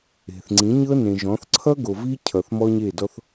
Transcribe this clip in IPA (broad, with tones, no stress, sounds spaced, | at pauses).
e̤˨ θ ŋ͡ǀ ĩ˨˦ ɲ ɤ˦ n ẽ˨ ʒ ɔ̃˨˦ θ ǀʰ ʌ˦ ɡ o˨ v i˦ cʰ ʌ˨ θ m ɔ˦ ɲ e˦˨ d ɔ˦ θ